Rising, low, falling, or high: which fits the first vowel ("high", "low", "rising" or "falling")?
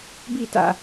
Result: falling